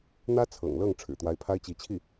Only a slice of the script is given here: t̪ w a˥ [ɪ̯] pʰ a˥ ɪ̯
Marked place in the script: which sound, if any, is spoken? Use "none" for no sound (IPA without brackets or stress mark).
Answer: ɪ̯